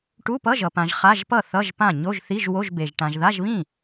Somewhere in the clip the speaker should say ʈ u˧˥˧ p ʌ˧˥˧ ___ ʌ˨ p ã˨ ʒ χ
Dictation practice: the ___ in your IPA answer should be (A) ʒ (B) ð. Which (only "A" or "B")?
A